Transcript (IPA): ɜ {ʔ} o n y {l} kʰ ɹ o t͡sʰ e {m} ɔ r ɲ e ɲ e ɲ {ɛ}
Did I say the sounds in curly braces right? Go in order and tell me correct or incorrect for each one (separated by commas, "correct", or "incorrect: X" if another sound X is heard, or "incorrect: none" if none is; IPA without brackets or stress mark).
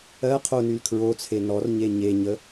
incorrect: qʰ, correct, incorrect: n, incorrect: ə